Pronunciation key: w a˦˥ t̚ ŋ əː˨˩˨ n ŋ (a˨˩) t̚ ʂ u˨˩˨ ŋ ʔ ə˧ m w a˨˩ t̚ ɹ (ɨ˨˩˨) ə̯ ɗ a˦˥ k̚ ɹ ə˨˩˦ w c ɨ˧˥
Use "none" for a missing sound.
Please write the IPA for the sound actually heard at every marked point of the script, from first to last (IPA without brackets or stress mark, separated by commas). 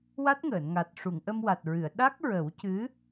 a˨˩, ɨ˨˩˨